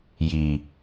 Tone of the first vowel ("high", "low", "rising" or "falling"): low